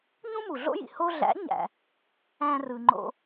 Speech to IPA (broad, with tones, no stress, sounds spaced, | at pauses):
ɲ ũ˥ m u˩ ɮ o̰˥ j ḭ˩ h o˧ ɮ æ̰˩˥ ɲ æ̰˩ | æ̃˧ r ɯ˩ ŋ͡ǃ o̰˧